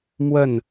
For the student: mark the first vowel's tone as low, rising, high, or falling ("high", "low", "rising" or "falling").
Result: falling